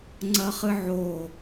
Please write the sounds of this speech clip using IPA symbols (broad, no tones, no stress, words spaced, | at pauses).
ŋ͡ǀɐχɨʕo